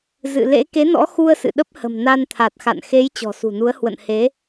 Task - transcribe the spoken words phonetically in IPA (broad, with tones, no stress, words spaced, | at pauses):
zɨ̰˧˨ lḛ˧˥ ke˨˦nɔ̰˧˥xu˧ə̯ sɨ̰˧˨ ɗə˦˥p̚hə̤˨˩m na˧nt̪ʰa˨˩t̚xa̰˧˨n xe˨˦j t͡ɕɔ̤˨˩sṳ˨˩nu˨˦ə̯ hwə̰˧˨nhe˨˦